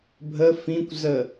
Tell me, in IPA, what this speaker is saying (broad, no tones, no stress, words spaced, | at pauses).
bʱə fĩkʷzə